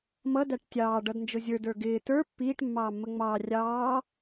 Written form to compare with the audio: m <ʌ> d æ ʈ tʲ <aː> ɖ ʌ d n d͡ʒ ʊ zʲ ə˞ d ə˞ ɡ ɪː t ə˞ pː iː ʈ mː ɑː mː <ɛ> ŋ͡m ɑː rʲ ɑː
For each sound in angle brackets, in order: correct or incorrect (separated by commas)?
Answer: correct, incorrect, incorrect